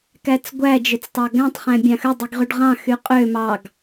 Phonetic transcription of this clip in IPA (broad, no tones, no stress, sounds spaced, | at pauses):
k æ t͡s ɡʷ æ d͡ʒ ø t͡s tˤ ɑ ɡ æ̃ tˤ χ æ̃ bʲ ɑ̃ x ø dˤ i ɡ ʁ y ɖ ʁ ɑ̃ x y qʼ ø m ɑ ɡ